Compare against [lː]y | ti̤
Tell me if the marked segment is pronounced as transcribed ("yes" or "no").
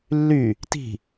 yes